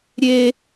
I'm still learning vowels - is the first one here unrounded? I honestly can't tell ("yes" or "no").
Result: yes